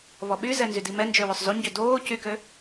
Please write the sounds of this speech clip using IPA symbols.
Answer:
β ɔ ɓ y z ɛ n z y d i m ɛ n d͡ʒ ø w ø sˤ z u ɲ ɟ ø d oː c y k ø

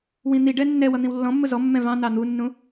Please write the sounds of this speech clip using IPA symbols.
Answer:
w ĩ n̪ i ɖ ɛ nː ɛ w ʌ n̪ ĩ w lː ɔ̃ mː ʊ z ɔ mː ɛ̃ v ɑ̃ n̪ ɑ n̪ u nː ũ

